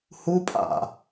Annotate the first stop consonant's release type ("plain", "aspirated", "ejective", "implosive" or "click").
ejective